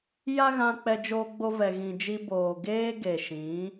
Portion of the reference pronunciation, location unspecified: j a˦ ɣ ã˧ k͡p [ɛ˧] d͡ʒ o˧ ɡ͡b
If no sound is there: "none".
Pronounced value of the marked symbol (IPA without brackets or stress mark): ɛ˧